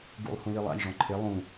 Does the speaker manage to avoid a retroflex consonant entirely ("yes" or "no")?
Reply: no